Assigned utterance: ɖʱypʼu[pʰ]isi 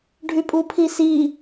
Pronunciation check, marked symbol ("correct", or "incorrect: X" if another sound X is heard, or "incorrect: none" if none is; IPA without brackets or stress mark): correct